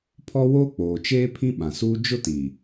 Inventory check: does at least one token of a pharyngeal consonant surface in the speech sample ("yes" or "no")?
no